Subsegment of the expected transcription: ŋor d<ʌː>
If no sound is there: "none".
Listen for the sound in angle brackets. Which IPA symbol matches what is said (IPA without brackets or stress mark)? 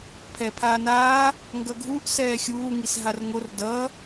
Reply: ʌ